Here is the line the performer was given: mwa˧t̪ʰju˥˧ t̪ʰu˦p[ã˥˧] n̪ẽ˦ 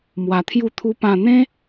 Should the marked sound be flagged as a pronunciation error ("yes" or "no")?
no